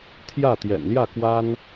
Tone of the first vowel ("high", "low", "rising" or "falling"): falling